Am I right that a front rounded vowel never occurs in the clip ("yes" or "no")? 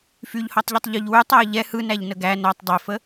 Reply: no